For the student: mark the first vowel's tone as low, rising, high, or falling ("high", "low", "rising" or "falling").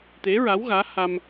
rising